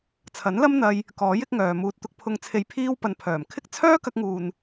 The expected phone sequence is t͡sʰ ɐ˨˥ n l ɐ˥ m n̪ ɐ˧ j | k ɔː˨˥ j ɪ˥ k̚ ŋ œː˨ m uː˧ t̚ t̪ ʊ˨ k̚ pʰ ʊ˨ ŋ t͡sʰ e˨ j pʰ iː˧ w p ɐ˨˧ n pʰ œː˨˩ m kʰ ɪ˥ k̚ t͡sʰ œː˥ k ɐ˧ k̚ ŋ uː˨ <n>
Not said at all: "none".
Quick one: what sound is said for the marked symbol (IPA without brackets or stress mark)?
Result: n